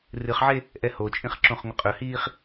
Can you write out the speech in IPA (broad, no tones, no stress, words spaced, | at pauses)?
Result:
rɨχʕe | ʔɛhot͡ʃʼĩχ ǁõχŋʷəqʼɵhiːχ